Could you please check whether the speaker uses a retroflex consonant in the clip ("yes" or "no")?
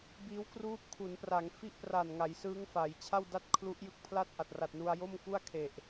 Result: no